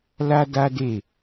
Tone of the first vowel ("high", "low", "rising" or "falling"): high